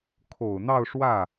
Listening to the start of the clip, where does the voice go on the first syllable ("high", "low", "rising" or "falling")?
low